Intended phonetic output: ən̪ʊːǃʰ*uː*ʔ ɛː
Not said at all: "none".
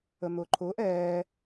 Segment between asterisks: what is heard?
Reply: ʊː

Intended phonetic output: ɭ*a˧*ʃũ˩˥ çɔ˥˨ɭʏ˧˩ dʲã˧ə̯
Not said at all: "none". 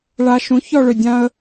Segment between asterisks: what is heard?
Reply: a˧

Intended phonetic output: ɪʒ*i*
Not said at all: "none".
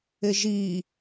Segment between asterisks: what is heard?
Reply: i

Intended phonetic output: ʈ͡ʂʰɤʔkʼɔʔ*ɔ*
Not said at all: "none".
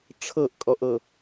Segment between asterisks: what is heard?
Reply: ɤ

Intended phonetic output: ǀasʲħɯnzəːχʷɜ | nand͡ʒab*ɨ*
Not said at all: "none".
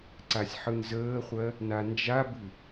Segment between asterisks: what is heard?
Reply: ɨ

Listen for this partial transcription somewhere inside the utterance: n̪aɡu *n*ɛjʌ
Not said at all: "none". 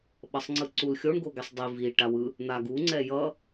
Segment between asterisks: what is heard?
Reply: ŋ͡ǀ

